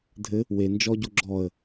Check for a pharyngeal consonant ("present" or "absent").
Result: absent